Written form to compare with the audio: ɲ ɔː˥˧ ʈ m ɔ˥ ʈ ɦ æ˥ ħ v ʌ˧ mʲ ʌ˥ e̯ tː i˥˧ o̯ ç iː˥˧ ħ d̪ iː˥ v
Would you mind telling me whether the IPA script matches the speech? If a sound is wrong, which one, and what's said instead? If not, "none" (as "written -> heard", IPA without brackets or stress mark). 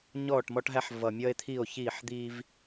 tː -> t̪ʰ